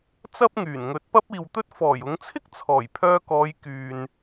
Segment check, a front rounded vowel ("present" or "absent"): present